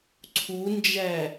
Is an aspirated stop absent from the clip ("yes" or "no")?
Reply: no